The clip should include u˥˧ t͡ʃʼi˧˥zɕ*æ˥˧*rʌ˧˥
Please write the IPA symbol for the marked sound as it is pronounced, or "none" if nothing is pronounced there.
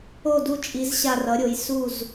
a˥˧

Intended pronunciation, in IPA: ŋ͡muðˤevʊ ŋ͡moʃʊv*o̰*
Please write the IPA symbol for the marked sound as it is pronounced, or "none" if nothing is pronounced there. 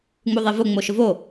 o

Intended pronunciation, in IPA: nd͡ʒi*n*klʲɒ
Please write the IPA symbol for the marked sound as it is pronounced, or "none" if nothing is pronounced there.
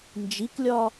none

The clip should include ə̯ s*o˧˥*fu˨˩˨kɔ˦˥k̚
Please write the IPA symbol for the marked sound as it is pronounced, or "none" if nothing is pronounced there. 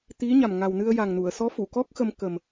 ɔ˧˥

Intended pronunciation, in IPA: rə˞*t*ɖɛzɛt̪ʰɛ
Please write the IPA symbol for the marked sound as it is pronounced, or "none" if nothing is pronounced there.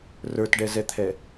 t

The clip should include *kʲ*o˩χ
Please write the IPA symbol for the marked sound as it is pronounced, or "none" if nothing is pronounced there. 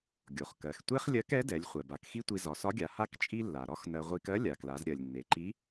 ɡʲ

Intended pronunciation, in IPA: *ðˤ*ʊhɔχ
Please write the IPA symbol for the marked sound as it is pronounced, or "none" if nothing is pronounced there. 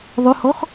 ðˤ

